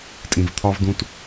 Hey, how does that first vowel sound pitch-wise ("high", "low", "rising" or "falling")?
low